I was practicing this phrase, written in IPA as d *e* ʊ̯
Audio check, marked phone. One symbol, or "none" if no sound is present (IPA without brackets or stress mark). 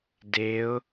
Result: e